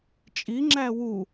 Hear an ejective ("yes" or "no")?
yes